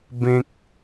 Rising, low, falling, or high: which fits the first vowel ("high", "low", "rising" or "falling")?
high